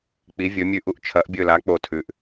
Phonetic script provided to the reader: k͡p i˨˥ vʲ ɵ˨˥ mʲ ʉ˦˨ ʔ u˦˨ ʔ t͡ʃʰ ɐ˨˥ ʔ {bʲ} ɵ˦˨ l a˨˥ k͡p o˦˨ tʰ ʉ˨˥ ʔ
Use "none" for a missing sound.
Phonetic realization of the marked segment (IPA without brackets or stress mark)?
bʲ